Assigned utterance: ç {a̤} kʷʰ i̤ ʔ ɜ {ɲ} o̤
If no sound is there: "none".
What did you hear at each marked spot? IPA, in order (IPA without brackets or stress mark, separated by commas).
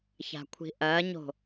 a̤, ɲ